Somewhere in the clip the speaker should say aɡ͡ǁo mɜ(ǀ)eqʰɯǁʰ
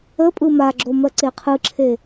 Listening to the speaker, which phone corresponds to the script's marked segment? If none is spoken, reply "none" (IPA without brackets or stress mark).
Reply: ǀ